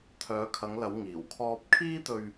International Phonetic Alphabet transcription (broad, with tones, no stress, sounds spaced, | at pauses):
t̪ʰ œː˨˧ kʰ ɐ˨˧ ŋ l ɐ˨˧ w ŋ iː˨˩ w kʰ ɔː˧ p̚ kʰ iː˥ t̪ ɵ˧ ɥ